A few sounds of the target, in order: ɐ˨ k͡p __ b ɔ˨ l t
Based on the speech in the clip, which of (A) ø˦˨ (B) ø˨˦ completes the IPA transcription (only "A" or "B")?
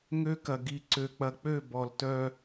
A